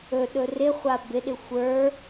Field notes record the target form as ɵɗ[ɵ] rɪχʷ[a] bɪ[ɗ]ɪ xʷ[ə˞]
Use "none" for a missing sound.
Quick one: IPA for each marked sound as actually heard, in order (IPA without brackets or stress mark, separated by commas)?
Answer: ɵ, a, ɗ, ə˞